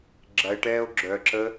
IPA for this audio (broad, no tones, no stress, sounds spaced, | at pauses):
ɡ͡ǁ ɐ e̯ ʈ ɛː o̯ ɡ͡ǁ œ ǁ ə